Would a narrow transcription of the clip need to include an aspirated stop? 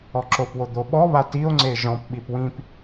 no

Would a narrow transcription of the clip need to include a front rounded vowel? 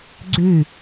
yes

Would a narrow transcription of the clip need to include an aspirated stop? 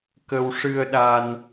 no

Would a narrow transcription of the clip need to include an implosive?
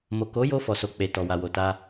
no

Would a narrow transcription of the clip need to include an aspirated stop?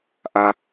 no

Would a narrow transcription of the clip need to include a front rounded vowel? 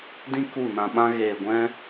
no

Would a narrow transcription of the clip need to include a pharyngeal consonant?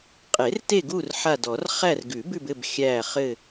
yes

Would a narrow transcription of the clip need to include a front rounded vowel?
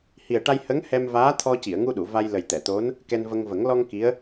no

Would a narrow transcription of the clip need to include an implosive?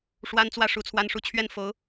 no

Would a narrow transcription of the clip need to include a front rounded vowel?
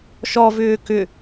yes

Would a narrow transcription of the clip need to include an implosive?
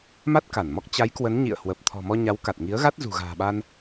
yes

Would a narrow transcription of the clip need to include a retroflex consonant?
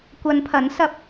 no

